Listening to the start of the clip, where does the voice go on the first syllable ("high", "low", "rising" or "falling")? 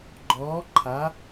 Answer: rising